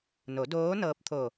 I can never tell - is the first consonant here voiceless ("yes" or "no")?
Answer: no